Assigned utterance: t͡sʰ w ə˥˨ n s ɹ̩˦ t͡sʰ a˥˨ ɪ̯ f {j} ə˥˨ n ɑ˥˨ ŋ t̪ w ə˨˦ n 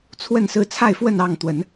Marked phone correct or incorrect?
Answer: incorrect